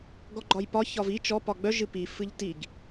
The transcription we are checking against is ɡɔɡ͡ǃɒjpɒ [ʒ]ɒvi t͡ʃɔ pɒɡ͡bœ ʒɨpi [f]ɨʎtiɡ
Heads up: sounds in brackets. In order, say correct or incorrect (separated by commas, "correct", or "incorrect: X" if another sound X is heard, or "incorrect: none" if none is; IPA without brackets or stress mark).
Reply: incorrect: ç, correct